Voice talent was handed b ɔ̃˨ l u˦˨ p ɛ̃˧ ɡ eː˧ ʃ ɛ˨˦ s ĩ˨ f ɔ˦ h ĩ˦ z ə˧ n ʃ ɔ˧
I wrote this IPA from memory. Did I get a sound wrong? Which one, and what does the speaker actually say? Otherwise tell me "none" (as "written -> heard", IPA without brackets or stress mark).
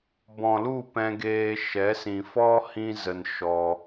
none